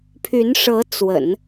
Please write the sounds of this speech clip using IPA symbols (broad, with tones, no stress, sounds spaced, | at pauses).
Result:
pʰ y˧˥ n ʂ ɤ˧˥ t͡s w ə̰˨˩˦ n